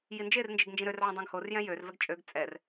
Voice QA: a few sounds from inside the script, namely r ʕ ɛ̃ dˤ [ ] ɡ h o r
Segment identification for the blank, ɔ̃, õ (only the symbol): õ